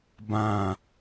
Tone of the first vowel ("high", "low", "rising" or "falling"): falling